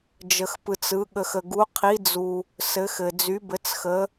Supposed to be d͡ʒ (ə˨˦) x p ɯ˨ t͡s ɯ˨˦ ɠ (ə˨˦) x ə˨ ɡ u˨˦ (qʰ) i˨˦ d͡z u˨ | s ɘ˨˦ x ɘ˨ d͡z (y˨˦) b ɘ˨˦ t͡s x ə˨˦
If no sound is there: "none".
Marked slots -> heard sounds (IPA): ə˨, ə˨, qʰ, y˨˦

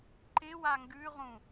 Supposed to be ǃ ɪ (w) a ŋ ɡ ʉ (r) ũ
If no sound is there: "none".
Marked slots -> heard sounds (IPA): w, ʁ

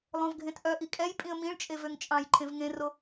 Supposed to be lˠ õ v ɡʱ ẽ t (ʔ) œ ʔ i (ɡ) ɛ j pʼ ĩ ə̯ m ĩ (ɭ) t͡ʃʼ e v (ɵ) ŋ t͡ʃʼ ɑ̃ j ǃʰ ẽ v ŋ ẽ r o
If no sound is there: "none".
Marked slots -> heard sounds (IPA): ʔ, kʼ, ɭ, ø

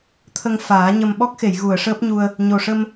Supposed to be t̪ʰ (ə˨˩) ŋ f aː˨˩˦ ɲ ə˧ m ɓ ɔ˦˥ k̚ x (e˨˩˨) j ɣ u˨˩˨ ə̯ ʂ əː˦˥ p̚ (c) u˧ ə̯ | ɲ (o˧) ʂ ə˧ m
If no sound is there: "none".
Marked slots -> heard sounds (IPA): ə˧, e˨˩˨, ɲ, o˨˩

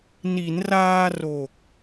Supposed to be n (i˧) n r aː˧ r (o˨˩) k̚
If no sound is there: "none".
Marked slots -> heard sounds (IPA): i˩˦, o˨˩

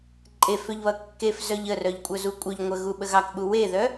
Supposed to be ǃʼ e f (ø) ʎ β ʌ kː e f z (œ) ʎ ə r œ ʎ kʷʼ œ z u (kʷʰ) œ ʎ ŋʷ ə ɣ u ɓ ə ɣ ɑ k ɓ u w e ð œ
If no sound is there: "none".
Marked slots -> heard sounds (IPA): ø, œ, kʷʼ

